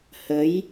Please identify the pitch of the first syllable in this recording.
rising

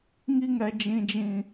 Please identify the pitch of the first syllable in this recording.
high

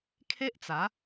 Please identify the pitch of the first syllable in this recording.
high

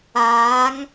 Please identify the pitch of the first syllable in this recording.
rising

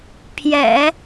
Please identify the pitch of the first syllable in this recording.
low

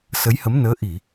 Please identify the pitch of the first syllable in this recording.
rising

